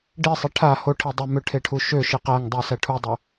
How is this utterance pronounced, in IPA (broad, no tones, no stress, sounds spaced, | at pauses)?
ɖ i sˤ e ʈʰ a h o ʈʰ i dˤ ø m ø ʈʰ e ʈʰ u ʃ ø ʃ i q æ ŋ dˤ u s æ ʈʰ u dˤ u